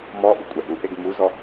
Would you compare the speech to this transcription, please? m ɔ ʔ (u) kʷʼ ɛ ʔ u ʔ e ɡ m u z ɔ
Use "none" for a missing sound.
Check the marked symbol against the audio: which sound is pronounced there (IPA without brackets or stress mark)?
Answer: u